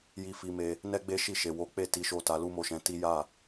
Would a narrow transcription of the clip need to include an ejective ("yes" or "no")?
no